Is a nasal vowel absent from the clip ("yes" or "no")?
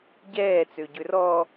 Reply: yes